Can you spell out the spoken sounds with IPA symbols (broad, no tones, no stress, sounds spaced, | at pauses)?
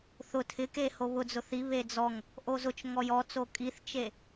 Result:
θ ʊ tʰ ɪ k e h o β ʊ d͡z ʊ θ i β e d͡z ɔ ŋ | ʔ o z ʊ t͡ʃ ŋ ɔ j ɔ t͡s o kʼ i θ t͡ʃ e